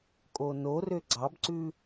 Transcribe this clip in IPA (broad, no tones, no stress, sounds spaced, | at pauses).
kʼ o n o r ø ɡ͡ǀ ɑ b ǀ ʉ